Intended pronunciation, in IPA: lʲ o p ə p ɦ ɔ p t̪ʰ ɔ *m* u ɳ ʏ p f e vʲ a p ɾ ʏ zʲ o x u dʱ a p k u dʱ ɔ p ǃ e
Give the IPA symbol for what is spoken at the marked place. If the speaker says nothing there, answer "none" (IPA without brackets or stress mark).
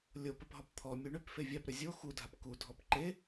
mʲ